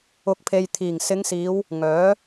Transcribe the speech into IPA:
ʊ˨˥ k̚ pʰ e˨ j t̪ʰ iː˨˩ ŋ s ɪ˨˧ ŋ s iː˨˧ w | ŋ œː˨˥

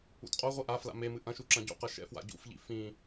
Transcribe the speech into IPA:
ṵ t qʼ o ʁʷ i ʔ a f l a̰ m e m ɨ ʔ ɐ̃ ʃ u ǁ ɐ̃ ɟ ṵ q ɐ ʃ ɛ̰ f w a̰ ɟ ṵ f ʎ ḭ f ĩ

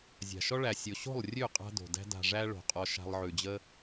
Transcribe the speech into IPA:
zʲ a̤˨ ʃ ɔ˦ ɭ æ˨ sʲ o˨ ɕ o̤˦˨ lˠ rʲ ʉ˦˨ qʼ a̤˦ d o̤˨ d æ̤˦ d a̤˨ ʐ æ˧ ɭ o̤˨ qʼ ɔ˧ ʃ a̤˧ lˠ ʕ ʉ˨ d͡ʑ ə˦

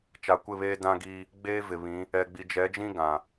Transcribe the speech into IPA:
t͡ʃ a˨ kʷ ɪ˦˨ β eː˦ d ã˦ ɡ iː˦ | ɡ͡b eː˦ v ɪ˨ β ĩ˨˦ | ɛ˨ ɡ͡b i˨ d͡ʒ ɛ˨˦ d͡ʒ ĩ˦ ɡ ã˨

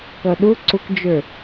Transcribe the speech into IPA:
k ʌ ɗ ʊ ǀ ʊ k d͡ʒ ə˞

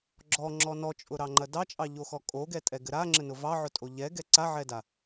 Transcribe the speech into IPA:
ɡ͡ǁ ɔ ŋ͡ǁ ɔ n ɔ t͡ʃʼ ʊ ɾ ɑ ŋ͡ǃ ɐ d ɑ t͡ʃʼ ɑ ʎ o x ɔ kʼ o ɡ ɛ tʼ ɛ ɡ ɘ ɾ a ŋ͡ǁ ɘ n ʊ v ɑ ʕ ʊ tʼ o ʎ ɛ ɡ ɛ ǀ a ʕ ɛ d a

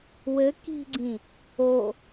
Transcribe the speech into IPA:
w ɘ k i̤ ɡ͡ǀ ĩ | o

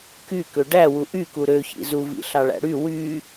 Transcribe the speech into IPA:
k y k ø ɖ æ w u ʔ y k u ɾ ø ç ḭ z u v ḭ ɬ ɑ ɭ æ̰ ɽ y w y

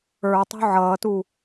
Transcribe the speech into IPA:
ə˞ tˤ ṳ ʕ ʌː t u

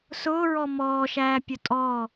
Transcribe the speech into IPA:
s ʊː ɹ ɔ m ɔː ʃ æː pʲ ʊ tʼ ɔː

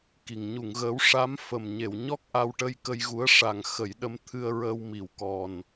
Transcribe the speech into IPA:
k i˨˩˨ ŋ ɲ u˨˩˨ ŋ ɣ əː˧˥ w ʂ a˧˥ m f ə˨˩ m ɲ e˨˩˨ w ɲ ɔ˦˥ k̚ ʔ a˧ w ʈ ə˧ j k ə˧ j ɣ u˧˥ ə̯ ʂ a˨˩ ŋ x ə˨˩˦ j ɗ ə˧ m t̪ʰ ɨ˧ ə̯ ɹ əː˧ w m i˨˩˨ w k ɔ˨˩ n

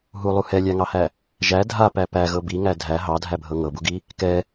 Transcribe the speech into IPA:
ɦ u lˠ u h ɛ lʲ æ ŋ ɑ h æ | ʒ æ dʱ a p æ p æ ɣ ɤ b i ŋ æ dʱ æ ɦ ɑ dʱ æ bʱ ɤ ŋ ɤ b u ɡ i | k ɛ

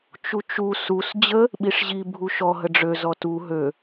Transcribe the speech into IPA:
t͡ʃ u t͡ʃ u s u s d͡ʑ ə | ɓ i ʂ ʑ i bʱ u ʃ ɔ ɦ ə ɖ͡ʐ ø z ɔ t u ɦ ø

